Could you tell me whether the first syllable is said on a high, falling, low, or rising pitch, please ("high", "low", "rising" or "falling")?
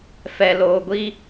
low